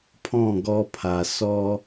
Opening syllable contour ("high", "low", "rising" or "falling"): falling